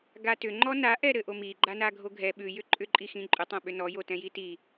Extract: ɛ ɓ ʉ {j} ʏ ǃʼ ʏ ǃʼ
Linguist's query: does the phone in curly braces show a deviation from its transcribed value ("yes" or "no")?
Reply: no